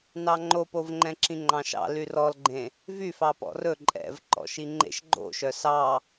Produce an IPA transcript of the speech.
n ɑ ŋ͡ǃ o p o v ŋ͡ǃ ɛ̃ ǁ ĩ ŋ͡ǃ ɑ̃ ʃ ɑ̰ l y r ɔ l ɡ͡ǃ ẽ | v y f ɑ p ɔ̰ r ɵ ǃʼ ɛ̰ v ǃ ɔ̰ ʃ i ŋ͡ǃ ḛ ʃ ɡ͡ǃ o̰ ʃ œ s ɑ

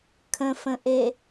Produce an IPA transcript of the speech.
kʰ ə̃ f ə̃ ʔ e

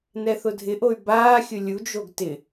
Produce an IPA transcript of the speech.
n ɛ θ ʊ dʱ ɪ ʔ o y̯ b aː xʲ ʊ lʲ u d͡ʒ o ɡ t ɪ

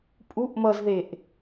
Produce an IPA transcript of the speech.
pʼ u ʔ m ʌ z ð e ʔ

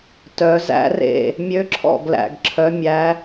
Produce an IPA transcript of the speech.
t œ˨˩˦ z æ̰˧˥ r ḛ˥˩ | mʲ ø˧˥ ǁʰ ɔ̰˥˩ ɡ l æ̰˨ ɡ ǁʰ œ˧˥ mʲ æ˧˥

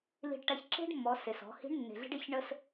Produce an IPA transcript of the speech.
l i̤˧ ɖ ʈ a˧ ç ǁ e̤˥ ɖ mː ɔ˩˧ s e˩ s ɔ̤˩˧ h i̤˧˥ ɳ nː e̤˩ ɮ i̤˧ ɖ e˧ ç ɳ ə˧ s

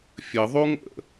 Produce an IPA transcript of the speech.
fʲ ə ðˤ u ŋ ə̰

